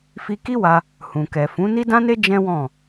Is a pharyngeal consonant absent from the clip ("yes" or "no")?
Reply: yes